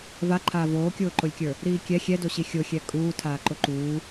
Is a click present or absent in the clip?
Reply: present